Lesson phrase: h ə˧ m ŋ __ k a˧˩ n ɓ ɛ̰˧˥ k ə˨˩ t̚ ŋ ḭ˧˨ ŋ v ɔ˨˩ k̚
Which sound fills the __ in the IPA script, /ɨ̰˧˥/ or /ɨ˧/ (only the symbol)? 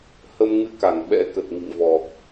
ɨ˧